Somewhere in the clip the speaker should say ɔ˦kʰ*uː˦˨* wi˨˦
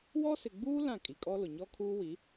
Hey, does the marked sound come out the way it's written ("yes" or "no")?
no